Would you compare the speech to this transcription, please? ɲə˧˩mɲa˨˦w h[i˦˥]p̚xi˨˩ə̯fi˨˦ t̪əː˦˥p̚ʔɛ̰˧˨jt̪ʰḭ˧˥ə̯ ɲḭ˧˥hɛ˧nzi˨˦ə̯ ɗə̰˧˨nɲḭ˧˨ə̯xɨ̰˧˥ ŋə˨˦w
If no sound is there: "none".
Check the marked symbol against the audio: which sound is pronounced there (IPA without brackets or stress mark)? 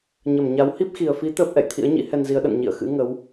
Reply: i˦˥